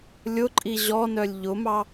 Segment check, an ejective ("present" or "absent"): present